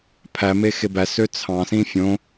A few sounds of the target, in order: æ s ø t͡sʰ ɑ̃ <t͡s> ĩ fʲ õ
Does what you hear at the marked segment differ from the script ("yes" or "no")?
yes